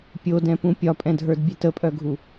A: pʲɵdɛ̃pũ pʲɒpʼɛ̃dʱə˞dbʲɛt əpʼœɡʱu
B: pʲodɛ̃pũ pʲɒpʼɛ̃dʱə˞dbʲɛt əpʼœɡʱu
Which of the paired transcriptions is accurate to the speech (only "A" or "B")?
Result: B